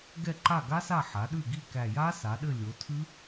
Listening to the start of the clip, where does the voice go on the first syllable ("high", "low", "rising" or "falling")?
falling